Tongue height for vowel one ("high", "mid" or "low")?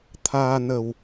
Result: low